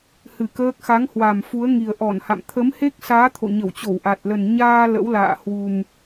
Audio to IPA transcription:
h ɨ˧˩ k əː˦˥ k̚ x a˨˦ ŋ h w a˨˩ m f u˨˦ ə̯ ŋ i˨˩ ə̯ ʔ ɔ˧˩ n h a̰˧˨ m t̪ʰ ə˨˦ m h e˦˥ k̚ s aː˨˦ t̪ʰ o̰˧˨ ɲ ə˧˩ w t͡ɕ o˧˩ w ʔ a˨˩ t̚ l ə˨˩ n ɲ aː˧ l ə̰˧˥ w l a̰ː˧˨ h w u˨˩ m

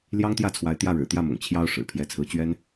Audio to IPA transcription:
l j ɑ˥ ŋ t̪ j ä˥˩ t͡sʰ w a˧˥ ɪ̯ t̪ j ä˥˩ ɻ ɻ̩˨˩ t̪ j ä˥˩ m ʊ̰˨˩ ŋ t͡ɕʰ j ɑ˥ ʊ̯ ʂ ɻ̩˨˩ pʰ j ɛ˧˥ t͡sʰ ɹ̩˧˥ t͡ɕ ɥ ɛ˥ n

